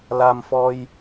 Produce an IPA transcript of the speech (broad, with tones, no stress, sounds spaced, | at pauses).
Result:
l a˧ m f ɔ˧ j